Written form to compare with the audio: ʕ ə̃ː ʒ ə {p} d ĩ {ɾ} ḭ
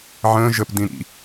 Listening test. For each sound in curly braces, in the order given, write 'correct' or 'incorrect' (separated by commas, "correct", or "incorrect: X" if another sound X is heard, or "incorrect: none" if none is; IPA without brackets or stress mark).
correct, correct